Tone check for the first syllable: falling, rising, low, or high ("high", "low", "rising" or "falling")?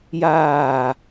falling